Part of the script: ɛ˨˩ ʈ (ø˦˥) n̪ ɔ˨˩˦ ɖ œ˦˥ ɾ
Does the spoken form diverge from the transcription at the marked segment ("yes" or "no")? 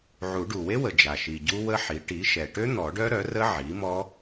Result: no